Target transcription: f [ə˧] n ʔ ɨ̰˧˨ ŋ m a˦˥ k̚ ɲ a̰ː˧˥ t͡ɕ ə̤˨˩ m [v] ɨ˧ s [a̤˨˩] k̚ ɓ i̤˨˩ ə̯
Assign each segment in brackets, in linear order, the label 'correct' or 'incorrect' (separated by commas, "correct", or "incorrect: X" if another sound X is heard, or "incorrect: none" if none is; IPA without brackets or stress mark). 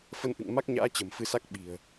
correct, incorrect: f, incorrect: a˦˥